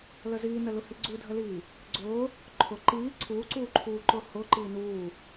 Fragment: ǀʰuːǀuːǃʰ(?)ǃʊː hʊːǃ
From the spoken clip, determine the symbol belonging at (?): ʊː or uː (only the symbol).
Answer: uː